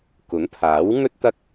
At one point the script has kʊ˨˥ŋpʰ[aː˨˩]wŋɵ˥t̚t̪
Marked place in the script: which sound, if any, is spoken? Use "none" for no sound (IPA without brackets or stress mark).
aː˨˥